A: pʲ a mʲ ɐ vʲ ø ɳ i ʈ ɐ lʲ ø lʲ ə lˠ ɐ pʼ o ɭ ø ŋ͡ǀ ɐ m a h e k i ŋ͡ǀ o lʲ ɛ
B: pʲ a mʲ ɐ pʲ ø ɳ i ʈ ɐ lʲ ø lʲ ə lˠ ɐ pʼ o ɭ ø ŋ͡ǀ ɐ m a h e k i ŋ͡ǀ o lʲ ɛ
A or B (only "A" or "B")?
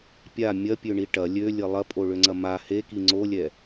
B